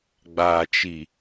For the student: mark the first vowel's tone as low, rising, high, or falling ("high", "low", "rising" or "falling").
low